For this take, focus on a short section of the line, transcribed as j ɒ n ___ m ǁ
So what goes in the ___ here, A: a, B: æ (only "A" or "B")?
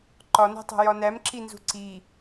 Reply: B